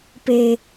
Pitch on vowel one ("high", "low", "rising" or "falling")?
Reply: high